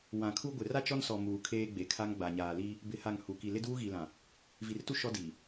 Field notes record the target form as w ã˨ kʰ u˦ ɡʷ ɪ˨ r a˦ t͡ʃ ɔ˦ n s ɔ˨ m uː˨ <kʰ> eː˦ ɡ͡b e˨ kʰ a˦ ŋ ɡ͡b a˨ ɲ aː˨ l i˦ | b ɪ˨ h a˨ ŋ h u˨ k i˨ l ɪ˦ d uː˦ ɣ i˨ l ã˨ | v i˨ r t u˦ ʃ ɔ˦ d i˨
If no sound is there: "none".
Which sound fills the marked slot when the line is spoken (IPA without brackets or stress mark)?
kʰ